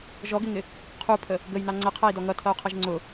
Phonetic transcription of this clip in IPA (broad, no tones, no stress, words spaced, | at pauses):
ʒɔɡɪŋɪ | qʰupʰə | ɡəjnɑ ŋ͡ǀəqʰæi̯dɔ ŋʌtʰʌu̯qʰʌʒ ŋ͡ǀʊ